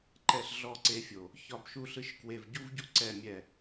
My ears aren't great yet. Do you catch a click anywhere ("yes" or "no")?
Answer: yes